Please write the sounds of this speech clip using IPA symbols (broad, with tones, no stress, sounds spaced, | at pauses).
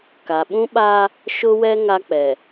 k a˨ ɓ ũ˦ ɓ aː˦ | ʃ ʊ˦ w ɛ˦ ŋ a˦ k͡p ɛ˨